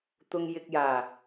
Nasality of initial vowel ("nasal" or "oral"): oral